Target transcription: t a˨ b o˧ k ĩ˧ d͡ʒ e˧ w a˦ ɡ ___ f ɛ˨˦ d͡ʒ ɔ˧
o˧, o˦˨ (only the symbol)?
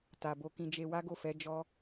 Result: o˦˨